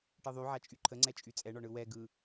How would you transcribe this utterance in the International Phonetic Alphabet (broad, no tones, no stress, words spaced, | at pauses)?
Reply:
ʈɯðˤyʕat͡ʃʼy ǃʰəŋ͡ǀɛt͡ʃʼy t͡sʼɛɳɔ ɳɯwɛ ɡɯ